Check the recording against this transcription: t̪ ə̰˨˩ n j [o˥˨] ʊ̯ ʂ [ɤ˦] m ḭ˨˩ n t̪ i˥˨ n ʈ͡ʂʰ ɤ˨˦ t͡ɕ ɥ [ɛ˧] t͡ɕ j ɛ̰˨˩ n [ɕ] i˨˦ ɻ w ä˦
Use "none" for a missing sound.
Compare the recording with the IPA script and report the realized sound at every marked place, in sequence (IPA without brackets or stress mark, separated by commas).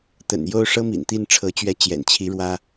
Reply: o˥˨, ɤ˦, ɛ˨˦, t͡ɕʰ